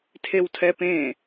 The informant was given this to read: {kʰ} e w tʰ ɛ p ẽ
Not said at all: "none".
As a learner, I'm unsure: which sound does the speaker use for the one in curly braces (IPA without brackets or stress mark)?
tʰ